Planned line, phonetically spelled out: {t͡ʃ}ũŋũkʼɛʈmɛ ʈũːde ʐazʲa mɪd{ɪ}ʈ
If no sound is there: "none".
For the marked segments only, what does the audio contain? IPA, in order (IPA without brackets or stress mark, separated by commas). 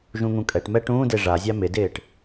ʒ, ɪː